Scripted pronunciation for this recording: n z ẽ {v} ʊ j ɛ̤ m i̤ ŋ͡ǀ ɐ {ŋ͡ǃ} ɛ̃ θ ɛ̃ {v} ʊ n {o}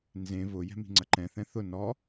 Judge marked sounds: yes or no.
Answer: yes, no, no, no

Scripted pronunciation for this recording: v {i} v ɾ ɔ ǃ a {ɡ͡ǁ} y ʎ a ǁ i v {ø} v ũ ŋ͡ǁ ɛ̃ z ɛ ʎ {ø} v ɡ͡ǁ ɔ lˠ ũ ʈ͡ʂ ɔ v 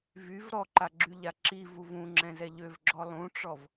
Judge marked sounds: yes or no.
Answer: no, yes, no, yes

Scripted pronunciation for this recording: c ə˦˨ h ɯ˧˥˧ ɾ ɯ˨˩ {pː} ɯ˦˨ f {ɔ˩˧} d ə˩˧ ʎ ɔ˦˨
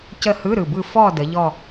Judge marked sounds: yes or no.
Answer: no, no

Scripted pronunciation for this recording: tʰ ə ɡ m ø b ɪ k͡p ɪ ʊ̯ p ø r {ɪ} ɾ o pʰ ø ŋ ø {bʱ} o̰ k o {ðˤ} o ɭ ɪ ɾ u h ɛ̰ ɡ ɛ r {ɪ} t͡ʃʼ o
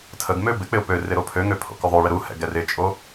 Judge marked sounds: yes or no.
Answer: yes, no, yes, yes

